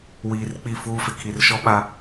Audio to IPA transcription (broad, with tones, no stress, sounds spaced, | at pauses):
w iː˨ r k͡p i˦˨ f uː˦ f ɪ˨ kʰ i˨ r ʃ ɔ˦ ɓ a˦